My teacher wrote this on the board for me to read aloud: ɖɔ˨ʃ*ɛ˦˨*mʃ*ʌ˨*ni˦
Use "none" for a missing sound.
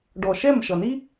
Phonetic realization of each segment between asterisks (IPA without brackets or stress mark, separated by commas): ɛ˦˨, ʌ˨